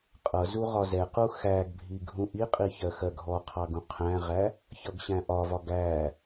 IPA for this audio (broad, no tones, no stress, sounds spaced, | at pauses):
qʼ ʌ z u ʁ ɒ z ɛ q u x æ ɡ bʱ i ɡʱ ũ ʔ i qʼ i ç ɜ x ɜ ɡʱ ɔ qʰ ɑ ɡ ũ qʰ æ̃ ʁ æ | ç ʌ ɡ ɕ æ̃ ʔ ɒ v ɒ ɡ æ